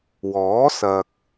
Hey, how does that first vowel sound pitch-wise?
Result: rising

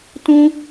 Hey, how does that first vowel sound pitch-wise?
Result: high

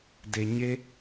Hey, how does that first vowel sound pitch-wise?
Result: low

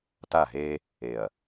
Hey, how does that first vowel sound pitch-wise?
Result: falling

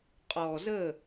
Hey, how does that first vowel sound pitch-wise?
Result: low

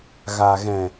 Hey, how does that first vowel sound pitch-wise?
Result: low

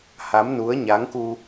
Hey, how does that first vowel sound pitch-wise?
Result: rising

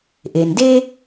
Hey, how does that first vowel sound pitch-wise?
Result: low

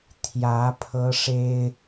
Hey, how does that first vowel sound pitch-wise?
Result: rising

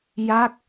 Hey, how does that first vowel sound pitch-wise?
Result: falling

